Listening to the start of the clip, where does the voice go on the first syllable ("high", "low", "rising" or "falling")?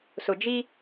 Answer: low